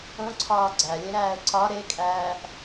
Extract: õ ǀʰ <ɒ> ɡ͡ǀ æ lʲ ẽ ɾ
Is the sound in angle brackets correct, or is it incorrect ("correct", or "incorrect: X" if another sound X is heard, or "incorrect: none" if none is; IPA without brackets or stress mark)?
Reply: incorrect: ɒː